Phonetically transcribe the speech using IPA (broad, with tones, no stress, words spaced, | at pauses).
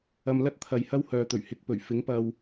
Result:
ɐ˧m lɐ˥t̚t̪ʰɐ˨jhɐ˥w hœː˨t̪ɵ˨˩ɥ hɪ˨k̚ pɵ˨˩ɥfɪ˨˥ŋ pɐ˧w